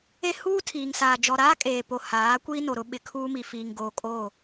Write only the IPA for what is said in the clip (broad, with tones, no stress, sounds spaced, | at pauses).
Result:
e˦ h uː˦ tʰ iː˨ ŋ s aː˨ d͡ʒ ɔ˨ ɾ aː˦ kʼ eː˨ p o˨ h aː˨˦ kʷ iː˦ n o˨ ɾ ʊ˦ ɓ ɪ˨ kʰ uː˦ m i˨ f iː˨ ŋ ɡ oː˨ kʼ o˦˨